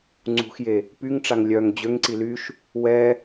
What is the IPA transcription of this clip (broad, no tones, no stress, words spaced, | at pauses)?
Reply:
ŋ͡ǀṳxje | pyŋʈ͡ʂaŋ lʲœŋ d͡ʑøŋǀi lyʃ | wɛ